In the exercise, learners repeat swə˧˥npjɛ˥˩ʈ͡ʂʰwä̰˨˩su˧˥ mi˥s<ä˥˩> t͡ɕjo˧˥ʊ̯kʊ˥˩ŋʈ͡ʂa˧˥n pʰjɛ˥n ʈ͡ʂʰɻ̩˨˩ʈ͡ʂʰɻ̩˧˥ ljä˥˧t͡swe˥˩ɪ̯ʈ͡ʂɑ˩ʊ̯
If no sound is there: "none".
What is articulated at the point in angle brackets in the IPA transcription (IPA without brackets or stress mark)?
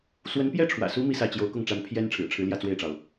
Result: ä˥˩